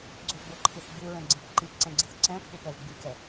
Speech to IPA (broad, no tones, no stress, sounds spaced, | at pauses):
ɡ͡ǀ o ɡ͡b o ǃʰ i θ ɡ͡b u ɹ ɛ̃ ɡ͡ǀ ĩ p ǃ i p ǀ ɛ̃ ɡ͡ǀ i θ ǀ ɛ̃ pʰ u p ɛ v ɡ͡b i k ɛ